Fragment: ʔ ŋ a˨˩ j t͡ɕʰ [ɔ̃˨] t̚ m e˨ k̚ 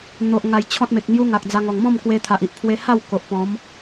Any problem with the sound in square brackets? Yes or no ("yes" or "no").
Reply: yes